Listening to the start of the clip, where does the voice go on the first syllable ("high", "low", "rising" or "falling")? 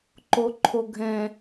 low